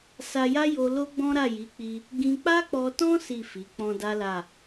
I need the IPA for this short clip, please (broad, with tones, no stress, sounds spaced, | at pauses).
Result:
s a˧ j a˦ j o˧ l o˦ ɡ͡b ɔ̃˦ ɾ a˦˨ j i˨˦ k͡p i˧ | ɡ ĩ˧ k͡p a˦ k͡p ɔ˧ t ɔ̃˦ s i˦˨ f i˨˦ k͡p ɔ̃˧ d a˦ l a˦˨